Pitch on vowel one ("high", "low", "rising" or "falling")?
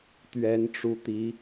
rising